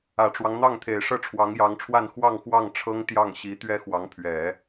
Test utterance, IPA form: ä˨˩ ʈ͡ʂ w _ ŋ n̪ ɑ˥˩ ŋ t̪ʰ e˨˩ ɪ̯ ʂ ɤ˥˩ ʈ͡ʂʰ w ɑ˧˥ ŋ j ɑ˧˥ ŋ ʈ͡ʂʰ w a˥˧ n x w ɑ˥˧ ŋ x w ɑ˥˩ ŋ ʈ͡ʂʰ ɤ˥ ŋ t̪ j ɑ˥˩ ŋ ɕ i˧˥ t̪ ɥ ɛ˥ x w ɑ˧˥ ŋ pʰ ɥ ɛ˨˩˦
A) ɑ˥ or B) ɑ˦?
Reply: B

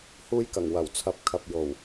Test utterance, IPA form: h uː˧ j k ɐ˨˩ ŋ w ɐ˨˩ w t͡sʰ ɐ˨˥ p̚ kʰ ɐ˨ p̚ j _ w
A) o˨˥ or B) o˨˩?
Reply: B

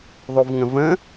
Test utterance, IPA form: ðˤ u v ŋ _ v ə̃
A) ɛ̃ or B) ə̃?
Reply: B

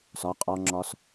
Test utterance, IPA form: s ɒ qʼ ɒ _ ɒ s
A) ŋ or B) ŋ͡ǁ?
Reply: B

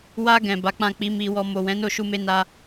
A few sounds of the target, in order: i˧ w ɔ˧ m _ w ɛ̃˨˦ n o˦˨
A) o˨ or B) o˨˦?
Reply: A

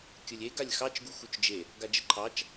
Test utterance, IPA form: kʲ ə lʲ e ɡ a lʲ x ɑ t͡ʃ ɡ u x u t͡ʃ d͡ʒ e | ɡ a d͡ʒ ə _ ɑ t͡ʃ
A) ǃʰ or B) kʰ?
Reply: A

